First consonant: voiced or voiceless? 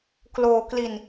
voiceless